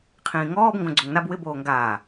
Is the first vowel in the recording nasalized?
yes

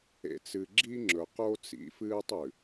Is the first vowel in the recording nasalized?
no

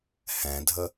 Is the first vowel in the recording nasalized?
yes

